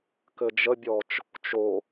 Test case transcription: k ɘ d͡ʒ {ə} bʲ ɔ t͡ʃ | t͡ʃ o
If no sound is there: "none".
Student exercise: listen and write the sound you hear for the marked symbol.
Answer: ə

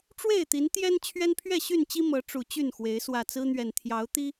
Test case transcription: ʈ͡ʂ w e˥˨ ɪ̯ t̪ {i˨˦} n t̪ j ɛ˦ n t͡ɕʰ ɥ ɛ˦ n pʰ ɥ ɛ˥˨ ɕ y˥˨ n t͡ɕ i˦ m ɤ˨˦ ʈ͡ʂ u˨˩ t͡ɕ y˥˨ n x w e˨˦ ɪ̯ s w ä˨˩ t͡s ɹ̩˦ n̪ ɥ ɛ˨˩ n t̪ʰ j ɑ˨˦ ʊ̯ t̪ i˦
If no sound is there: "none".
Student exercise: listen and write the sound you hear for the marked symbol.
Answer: i˨˦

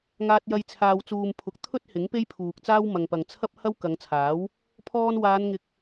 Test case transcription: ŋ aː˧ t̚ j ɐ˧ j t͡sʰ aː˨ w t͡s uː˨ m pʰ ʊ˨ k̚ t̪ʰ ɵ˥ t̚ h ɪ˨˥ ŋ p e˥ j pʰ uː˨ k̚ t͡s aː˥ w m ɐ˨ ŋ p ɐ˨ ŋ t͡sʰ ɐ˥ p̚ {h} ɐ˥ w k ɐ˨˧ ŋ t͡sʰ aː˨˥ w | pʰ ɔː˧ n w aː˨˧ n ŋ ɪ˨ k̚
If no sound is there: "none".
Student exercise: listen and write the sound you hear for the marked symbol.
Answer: h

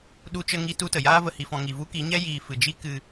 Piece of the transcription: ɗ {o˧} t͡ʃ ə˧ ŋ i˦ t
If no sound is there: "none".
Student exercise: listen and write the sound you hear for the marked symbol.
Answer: u˧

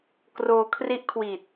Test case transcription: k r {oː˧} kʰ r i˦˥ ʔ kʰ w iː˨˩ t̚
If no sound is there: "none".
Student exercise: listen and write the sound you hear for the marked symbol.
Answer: oː˧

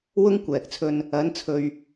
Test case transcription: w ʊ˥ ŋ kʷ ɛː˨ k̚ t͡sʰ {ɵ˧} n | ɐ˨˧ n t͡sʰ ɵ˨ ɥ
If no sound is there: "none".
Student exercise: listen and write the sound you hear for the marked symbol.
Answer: ɵ˧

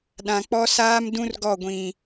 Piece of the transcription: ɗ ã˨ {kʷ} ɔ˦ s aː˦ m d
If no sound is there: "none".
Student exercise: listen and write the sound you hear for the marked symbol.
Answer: k͡p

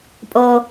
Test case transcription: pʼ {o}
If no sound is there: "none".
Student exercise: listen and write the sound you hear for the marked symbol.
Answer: o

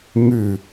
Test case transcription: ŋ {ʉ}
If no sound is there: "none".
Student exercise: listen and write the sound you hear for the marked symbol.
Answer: ʉ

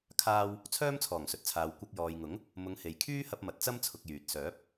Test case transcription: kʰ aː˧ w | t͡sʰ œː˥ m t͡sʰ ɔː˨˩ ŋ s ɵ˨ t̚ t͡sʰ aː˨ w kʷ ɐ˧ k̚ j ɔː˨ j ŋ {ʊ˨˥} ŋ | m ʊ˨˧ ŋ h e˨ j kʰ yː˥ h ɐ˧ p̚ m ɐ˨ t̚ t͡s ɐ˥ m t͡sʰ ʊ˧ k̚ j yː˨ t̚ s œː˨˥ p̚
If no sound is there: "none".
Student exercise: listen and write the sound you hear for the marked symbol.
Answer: ʊ˨˥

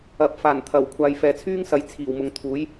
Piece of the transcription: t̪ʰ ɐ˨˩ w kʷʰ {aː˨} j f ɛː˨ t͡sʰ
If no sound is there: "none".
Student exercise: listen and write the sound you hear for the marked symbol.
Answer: aː˨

